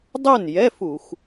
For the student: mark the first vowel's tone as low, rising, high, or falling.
falling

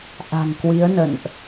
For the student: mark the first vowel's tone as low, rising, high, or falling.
low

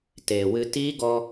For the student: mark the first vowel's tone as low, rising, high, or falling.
low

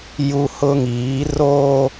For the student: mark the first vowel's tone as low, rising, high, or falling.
high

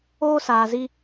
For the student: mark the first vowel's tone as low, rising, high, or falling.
high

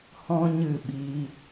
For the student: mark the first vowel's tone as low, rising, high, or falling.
high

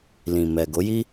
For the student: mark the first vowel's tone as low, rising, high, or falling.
low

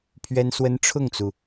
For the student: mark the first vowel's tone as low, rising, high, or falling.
high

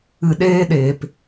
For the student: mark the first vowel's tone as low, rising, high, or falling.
low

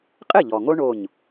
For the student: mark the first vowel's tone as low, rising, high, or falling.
falling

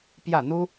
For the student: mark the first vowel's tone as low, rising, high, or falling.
falling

